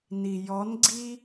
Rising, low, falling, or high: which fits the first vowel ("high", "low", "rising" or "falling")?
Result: low